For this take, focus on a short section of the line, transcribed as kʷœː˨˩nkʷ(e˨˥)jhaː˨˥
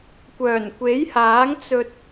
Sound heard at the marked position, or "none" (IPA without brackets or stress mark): e˨˥